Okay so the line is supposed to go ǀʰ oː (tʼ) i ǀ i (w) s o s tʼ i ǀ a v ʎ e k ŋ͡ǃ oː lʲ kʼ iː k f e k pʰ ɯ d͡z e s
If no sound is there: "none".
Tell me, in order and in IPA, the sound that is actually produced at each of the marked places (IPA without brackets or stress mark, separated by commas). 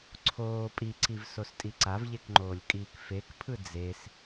pʼ, v